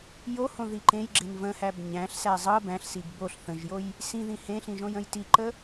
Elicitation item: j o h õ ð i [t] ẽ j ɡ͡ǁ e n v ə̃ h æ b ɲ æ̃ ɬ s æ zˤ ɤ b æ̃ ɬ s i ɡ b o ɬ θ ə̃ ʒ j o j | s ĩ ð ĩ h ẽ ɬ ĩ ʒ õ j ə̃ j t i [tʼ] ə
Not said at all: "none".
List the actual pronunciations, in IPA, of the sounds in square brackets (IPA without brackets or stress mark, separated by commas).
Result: ǃ, ǃ